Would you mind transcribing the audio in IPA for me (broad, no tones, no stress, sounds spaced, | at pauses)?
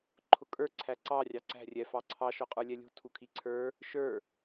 ǃʰ ʊ kʼ ə˞ ǀʰ æ ǀ ɑ rʲ ɑ ǀ æ̤ rʲ ɛ f ɑ ǀʰ ɑ ʃ ɔ qʼ ə˞ lʲ ɛ lʲ ṳ tʰ u kʰ i ǀʰ ə˞ | ʃ ə˞